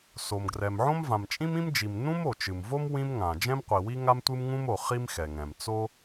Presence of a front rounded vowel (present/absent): absent